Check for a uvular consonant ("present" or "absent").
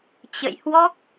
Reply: absent